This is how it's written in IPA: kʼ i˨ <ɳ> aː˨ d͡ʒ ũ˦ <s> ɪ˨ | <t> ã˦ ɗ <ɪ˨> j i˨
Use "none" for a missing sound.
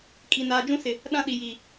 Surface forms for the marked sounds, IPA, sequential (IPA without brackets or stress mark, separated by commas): n, s, ɗ, i˨